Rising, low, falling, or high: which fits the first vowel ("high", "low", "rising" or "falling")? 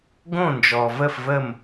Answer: falling